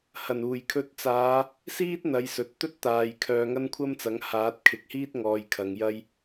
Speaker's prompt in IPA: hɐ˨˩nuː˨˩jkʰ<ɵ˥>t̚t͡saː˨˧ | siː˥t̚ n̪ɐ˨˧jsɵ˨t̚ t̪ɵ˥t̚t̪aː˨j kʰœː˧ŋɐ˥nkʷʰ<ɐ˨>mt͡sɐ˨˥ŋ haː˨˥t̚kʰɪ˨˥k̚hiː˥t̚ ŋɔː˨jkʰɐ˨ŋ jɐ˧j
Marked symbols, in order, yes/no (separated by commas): no, no